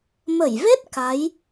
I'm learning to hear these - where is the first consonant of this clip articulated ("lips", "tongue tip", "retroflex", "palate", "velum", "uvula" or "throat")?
lips